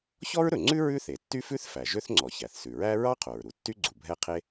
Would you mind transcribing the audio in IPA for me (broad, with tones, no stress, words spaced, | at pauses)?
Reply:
çɔ˥ɹɾɵ˩ŋ͡ǀʉ˥ ɹʉ˥θe˩tːy˥fʉ˥θ fæ˩ʒø˥θŋ͡ǀɔ˩ çæ˩θsʉ˩ɹæ˥ ɹɑ˥qʰo˩ɹɾu˩ tːy˥ɡ͡ǀu˩ bʱɛ˥qʰe˥